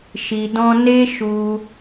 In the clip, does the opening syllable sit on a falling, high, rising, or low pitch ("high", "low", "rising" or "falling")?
low